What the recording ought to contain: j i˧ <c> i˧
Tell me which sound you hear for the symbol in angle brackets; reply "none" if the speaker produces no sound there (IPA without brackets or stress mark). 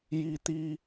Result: t̪